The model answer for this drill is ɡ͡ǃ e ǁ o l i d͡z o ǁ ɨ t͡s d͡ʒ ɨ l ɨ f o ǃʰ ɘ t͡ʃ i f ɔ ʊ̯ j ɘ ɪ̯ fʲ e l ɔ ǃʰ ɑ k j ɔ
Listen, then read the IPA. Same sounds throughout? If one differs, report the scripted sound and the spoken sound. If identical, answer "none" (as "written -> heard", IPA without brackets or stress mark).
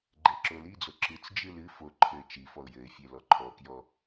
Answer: ɑ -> ɔ